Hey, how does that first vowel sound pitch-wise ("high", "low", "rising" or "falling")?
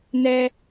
low